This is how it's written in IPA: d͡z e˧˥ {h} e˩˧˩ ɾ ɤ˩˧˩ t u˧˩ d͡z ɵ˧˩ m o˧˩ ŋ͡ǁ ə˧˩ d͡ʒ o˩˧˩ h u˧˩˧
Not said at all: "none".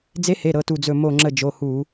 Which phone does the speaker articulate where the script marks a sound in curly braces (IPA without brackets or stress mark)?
h